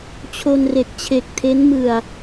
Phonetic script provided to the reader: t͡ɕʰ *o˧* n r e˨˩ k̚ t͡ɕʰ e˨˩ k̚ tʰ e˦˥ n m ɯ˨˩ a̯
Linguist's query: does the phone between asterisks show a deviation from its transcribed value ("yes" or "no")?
no